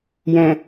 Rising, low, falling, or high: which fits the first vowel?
low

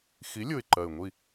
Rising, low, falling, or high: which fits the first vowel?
rising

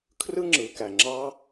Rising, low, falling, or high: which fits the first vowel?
high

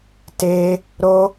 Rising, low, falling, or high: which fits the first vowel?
high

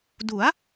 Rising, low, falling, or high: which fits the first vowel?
rising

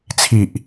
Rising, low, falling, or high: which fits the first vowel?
low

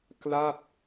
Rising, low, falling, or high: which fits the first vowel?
falling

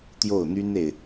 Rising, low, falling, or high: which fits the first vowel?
falling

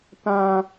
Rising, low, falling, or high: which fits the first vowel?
low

